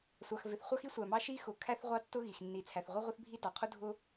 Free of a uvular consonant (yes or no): no